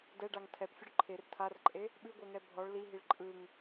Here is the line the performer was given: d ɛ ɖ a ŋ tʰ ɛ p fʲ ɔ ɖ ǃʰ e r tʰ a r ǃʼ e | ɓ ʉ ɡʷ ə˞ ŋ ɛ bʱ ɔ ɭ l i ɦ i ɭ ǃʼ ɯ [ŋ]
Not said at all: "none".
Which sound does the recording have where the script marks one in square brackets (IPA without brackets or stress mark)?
ŋ